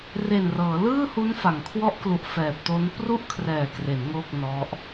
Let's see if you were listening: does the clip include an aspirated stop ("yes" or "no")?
yes